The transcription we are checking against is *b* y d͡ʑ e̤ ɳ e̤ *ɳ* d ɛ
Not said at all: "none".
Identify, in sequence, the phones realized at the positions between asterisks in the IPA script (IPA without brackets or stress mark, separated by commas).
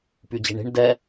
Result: p, ɳ